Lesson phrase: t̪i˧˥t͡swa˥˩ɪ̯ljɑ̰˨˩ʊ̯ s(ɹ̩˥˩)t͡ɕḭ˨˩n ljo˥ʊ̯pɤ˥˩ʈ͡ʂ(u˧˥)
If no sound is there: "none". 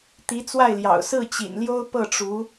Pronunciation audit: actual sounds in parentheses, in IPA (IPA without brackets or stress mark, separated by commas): ɹ̩˥˩, u˧˥